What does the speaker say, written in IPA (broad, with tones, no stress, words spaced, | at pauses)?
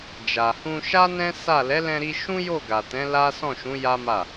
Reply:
d͡ʒa˨hũ˧ʃa˦ nɛ̃˦ sa˦˨ lɛ˨˦lɛ̃˧ɾi˧ ʃũ˦jo˦˨ɡa˨tɛ̃˨˦ la˦ sɔ̃˦˨ʃũ˨˦ ja˦ma˦˨